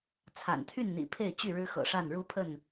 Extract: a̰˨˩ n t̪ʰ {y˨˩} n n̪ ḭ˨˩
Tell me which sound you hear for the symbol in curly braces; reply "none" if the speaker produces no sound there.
y˥˨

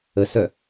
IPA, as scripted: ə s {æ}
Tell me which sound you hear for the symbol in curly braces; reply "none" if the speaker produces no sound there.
œ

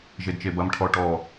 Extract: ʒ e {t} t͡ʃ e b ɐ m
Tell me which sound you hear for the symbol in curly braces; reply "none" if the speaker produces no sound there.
d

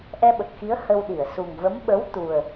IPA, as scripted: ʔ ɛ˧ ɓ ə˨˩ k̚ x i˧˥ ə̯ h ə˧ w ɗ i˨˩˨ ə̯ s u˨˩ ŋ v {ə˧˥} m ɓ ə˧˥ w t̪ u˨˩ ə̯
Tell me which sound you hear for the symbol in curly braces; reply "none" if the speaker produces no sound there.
ə˧˥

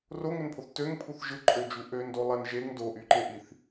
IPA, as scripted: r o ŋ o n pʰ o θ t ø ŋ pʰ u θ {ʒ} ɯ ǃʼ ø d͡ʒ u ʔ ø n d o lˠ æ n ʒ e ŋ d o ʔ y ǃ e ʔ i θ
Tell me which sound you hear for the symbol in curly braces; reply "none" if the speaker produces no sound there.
ʒ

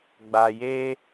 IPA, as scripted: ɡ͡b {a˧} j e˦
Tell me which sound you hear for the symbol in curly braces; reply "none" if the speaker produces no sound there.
a˧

